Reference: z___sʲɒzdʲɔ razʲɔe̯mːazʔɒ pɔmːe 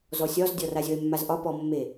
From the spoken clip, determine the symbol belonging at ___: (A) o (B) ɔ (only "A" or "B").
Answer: B